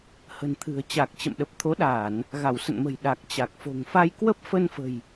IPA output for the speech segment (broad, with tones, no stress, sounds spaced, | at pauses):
h ə̤˨˩ n t̪ʰ ɨ̤˨˩ ə̯ t͡ɕ a˨˩ k̚ t͡ɕ ə̰˧˨ m ɗ ə˨˩ p̚ t̪ʰ o˨˦ ɗ aː˧˩˨ n | ɣ a˧˩ w s ə̰˧˨ n m ə̤˨˩ j ɗ a˨˩ k̚ t͡ɕ a˨˩ k̚ f o̤˨˩ ŋ f a˧ j k w ə˦˥ p̚ f ə˧ n f ə̤˨˩ j